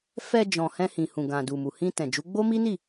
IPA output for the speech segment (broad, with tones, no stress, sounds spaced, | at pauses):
f ɛ˧ d͡ʒ ɔ̃˨ h ɛ̃˧ h ĩ˨ h ũ˨ ɡ ã˨ d u˨ m u˨ h ĩ˧ t ɛ̃˨ d͡ʒ u˨˦ ɡ͡b o˦ m i˦ n i˦˨